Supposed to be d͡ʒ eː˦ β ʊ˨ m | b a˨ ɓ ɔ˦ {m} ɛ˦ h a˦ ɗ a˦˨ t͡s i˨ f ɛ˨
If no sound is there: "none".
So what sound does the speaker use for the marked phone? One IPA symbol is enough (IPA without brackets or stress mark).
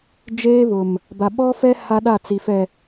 f